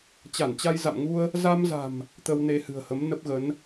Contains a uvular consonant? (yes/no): no